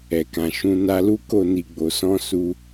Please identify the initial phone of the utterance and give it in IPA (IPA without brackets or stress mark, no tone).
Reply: ɛ